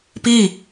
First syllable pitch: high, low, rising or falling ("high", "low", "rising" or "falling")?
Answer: falling